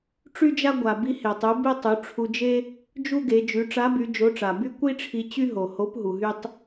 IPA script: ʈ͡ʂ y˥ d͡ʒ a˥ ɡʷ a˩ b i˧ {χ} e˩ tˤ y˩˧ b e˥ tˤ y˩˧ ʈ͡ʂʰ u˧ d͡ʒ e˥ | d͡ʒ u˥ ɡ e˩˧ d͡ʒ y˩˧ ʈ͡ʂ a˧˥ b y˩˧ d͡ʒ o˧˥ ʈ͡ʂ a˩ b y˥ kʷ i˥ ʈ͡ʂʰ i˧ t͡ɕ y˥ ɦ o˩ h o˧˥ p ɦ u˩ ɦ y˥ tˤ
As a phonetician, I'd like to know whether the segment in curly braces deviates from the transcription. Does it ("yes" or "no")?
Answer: yes